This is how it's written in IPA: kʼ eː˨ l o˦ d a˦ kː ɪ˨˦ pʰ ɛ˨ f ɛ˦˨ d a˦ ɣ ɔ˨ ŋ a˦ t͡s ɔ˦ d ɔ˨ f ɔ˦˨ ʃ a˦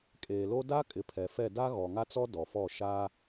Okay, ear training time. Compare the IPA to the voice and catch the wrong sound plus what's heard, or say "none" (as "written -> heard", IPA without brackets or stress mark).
kː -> kʼ